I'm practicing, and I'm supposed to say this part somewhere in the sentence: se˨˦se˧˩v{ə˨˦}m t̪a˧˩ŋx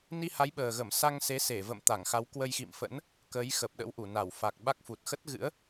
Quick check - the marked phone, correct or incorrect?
incorrect